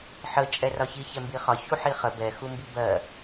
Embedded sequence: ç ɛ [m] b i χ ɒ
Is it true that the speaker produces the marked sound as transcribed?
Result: yes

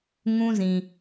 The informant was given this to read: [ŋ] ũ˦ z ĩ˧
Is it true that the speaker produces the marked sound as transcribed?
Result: yes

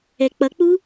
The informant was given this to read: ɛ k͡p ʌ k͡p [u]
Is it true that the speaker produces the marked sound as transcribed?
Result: yes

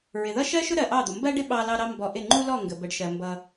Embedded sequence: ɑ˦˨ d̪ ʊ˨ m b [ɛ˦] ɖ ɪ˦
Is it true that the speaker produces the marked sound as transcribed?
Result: no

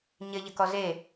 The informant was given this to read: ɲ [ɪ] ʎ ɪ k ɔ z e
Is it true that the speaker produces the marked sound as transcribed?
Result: yes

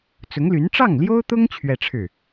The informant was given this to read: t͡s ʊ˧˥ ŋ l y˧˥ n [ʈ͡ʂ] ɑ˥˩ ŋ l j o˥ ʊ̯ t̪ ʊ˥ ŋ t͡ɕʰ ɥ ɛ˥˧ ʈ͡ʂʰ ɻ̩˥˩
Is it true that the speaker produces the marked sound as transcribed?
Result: yes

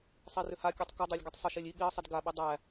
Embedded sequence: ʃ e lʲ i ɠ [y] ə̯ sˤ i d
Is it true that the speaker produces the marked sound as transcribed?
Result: no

